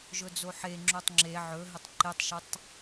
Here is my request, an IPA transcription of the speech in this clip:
ʒ ɵ d͡z o ħ e ŋ͡ǁ o tˤ ŋ͡ǁ e ʕ ɵ ɦ ɘ tˤ ǃ e tˤ ʃ ə tˤ

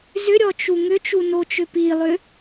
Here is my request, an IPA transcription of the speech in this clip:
z ʏ ɾʲ ɔ t͡ʃ u ŋ ʏ t͡ʃ u n o t͡ʃ ʏ p i lˠ ʏ

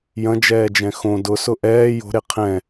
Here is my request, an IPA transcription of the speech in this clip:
j ɐ̃ d͡ʒ ɛː d͡ʒ ɛ̃ x õ d ʊ s ʊ ʔ ɛː j o̤ ɾ e qʰ ɛ̃

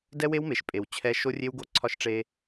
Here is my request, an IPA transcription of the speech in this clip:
d ɛ˦ w e˦ w m e˨ ʃ pʼ e˨ w t͡ɕʰ ɛ˦ ʃ o˦ rʲ e˦ w ɡ o˦ ǀʰ ɒ˦ ʃ ʈ͡ʂ e˦

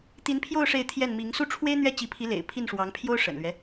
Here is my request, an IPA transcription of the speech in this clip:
t̪ i˧˥ n pʰ j o˥˧ ʊ̯ ʂ e˥˧ ɪ̯ t̪ʰ j ɛ˥˩ n m i˧˥ ŋ s u˥˩ ʈ͡ʂʰ w e˥ ɪ̯ n̪ ɥ ɛ˥˩ t͡ɕ i˧˥ pʰ i˧˥ l ḛ˨˩ ɪ̯ pʰ i˥˩ n ʂ w ɑ˧˥ ŋ pʰ j o˥ ʊ̯ ʂ ə̰˨˩ n l ɥ ɛ˦

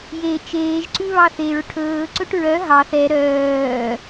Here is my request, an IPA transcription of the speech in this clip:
j e t͡ʃ eː ʒ ǀ ʉ β ɑ θ e ɹ ʈʰ ɵː ǀ ɵ ʈ ɹ œ ɦ ɑ θ ɛ ɾ œː

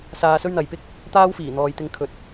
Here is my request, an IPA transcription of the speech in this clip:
s aː˧ s ɵ˥ ɥ n̪ ɐ˨ j p ɪ˥ k̚ | t̪ aː˥ w f iː˨˩ n̪ ɔː˨ j t̪ ɪ˧ ŋ kʰ ɵ˨ t̚

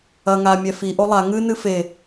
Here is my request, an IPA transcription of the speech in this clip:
ɐ ŋ a mʲ ɛ f i ʔ o lˠ a ŋ ɨ n ɨ f e

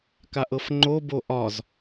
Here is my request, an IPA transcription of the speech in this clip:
k a ʔ ɤ f ŋ͡ǃ o b o ʔ ɒ z

